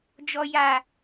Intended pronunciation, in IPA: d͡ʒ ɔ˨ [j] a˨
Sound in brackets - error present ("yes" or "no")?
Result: no